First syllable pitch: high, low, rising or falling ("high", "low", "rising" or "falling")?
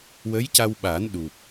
rising